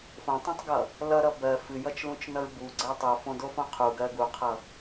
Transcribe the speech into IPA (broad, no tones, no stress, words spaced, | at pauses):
fõtˤõtˤɡʌ | lʌɾʌ bɜ fɨjʌt͡ʃlũt͡ʃnʌɹ buɡ͡ǀɜ tˤufõdofõ qʰuɡɜ ɡuqʰʌ